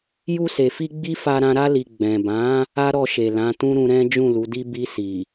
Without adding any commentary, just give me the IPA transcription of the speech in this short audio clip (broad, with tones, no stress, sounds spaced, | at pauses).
j u˧ s e˨ f i˧ ɡ͡b i˦ f a˧ ɾ ã˧ ɾ a˧ l i˨ ɡ͡b ɛ̃˨ b ã˨˦ | a˦ ɾ ɔ˧ ʃ e˨ l ã˨˦ t ũ˦ ɾ ũ˧ ɾ ɛ̃˦ d͡ʒ ũ˦˨ l u˨˦ d i˦ b i˧ s i˨